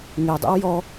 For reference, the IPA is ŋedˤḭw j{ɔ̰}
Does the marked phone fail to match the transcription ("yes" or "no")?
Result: yes